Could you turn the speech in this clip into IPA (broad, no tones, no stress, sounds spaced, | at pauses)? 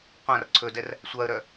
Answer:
qʷ ã r ǀʰ ɵ d ɛ r | sʷ a ə̯ ɾ œ